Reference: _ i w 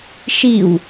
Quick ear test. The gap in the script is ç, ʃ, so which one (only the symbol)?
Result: ʃ